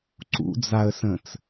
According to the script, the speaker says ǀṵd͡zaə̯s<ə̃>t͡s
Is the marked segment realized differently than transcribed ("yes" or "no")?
no